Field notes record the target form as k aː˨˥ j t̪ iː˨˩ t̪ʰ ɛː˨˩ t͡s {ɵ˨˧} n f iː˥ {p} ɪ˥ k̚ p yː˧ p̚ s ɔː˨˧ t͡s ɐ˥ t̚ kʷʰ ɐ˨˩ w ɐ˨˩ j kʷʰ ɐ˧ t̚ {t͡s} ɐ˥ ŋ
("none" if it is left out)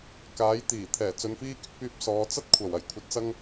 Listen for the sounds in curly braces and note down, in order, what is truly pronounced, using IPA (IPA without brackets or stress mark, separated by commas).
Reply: ɵ˨˧, k, t͡s